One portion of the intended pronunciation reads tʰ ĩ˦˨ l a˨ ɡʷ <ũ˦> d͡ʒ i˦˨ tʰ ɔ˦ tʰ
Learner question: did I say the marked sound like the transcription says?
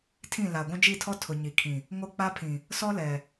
yes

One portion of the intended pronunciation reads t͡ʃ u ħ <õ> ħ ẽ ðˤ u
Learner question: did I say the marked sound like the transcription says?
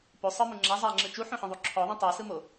yes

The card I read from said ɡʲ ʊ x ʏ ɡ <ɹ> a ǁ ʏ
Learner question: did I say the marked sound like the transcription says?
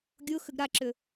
no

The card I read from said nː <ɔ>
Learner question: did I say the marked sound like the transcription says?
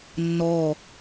no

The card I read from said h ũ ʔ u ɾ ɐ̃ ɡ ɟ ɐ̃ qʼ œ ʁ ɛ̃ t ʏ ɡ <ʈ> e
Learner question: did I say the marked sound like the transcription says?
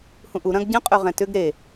no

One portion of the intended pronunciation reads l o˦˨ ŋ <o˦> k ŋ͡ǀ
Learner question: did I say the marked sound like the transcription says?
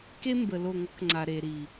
no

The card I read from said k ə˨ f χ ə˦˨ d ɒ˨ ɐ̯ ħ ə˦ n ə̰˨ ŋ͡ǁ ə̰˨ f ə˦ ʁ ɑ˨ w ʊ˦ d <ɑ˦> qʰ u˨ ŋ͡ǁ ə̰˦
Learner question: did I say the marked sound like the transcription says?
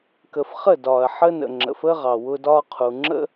no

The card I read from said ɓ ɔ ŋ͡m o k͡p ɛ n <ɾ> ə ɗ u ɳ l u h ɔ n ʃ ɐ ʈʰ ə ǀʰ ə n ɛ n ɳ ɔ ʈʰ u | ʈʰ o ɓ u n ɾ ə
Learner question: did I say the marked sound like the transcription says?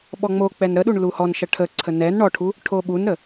yes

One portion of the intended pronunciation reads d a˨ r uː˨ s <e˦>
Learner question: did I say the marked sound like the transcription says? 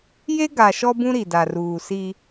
no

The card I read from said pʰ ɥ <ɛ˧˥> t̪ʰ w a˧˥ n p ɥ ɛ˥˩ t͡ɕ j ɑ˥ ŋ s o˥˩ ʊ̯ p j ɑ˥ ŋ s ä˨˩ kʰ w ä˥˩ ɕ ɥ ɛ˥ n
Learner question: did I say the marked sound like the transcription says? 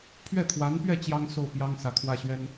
no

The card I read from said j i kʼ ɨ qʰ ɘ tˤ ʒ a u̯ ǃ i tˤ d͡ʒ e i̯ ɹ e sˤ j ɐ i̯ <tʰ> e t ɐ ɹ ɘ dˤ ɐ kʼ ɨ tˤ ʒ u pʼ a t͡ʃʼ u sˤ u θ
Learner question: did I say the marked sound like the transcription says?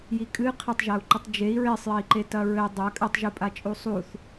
no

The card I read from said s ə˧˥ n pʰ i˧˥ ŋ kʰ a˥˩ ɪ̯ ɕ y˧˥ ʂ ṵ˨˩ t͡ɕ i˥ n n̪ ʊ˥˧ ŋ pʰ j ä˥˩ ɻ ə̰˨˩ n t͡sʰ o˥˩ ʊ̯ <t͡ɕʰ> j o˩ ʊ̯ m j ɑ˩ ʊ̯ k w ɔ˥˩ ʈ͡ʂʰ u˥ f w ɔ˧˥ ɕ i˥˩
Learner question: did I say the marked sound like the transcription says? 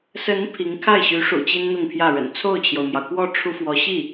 yes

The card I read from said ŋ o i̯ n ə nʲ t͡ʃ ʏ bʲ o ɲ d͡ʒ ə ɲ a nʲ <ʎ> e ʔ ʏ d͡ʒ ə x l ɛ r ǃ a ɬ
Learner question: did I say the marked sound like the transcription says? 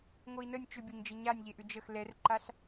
yes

